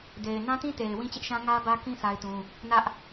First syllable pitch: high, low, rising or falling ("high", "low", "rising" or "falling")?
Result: low